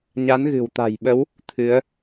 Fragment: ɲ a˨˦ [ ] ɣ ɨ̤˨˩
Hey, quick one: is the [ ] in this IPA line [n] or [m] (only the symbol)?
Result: n